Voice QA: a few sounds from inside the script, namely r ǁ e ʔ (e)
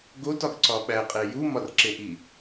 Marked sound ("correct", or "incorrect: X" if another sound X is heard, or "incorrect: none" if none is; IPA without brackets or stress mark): incorrect: i